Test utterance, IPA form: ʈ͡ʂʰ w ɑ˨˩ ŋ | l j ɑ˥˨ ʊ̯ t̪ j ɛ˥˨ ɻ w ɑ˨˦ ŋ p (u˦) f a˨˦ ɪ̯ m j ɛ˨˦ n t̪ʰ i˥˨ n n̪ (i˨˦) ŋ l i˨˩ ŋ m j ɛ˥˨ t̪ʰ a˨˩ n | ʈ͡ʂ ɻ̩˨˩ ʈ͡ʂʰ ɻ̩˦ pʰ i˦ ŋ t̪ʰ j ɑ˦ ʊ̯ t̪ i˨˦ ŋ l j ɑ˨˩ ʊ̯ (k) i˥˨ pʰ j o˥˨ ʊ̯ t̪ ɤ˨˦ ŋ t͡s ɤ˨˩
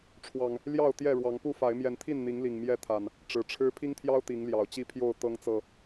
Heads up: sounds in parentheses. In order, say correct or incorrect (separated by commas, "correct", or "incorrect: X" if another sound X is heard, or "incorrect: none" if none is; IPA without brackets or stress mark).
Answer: incorrect: u˥˨, correct, incorrect: t͡ɕ